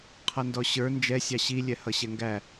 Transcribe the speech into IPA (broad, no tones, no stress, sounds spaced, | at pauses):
qʰ ʌ n d ɔ ɕ ə˞ n d͡ʒ ɛ sʲ ɑ ɕ i lʲ ɛ h ʌ ɕ ɛ ŋ ɡ æ